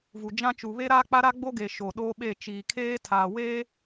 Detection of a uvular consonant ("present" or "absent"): absent